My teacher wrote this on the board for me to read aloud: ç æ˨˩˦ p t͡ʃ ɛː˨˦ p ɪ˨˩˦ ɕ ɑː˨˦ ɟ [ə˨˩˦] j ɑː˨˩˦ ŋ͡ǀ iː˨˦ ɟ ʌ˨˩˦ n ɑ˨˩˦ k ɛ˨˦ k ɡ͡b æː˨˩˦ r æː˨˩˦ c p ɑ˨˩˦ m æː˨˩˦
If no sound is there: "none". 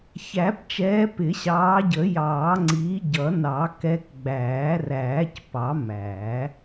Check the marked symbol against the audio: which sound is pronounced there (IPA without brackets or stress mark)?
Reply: ə˨˩˦